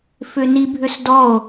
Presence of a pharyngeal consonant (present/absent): absent